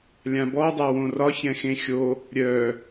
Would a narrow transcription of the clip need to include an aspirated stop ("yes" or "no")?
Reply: no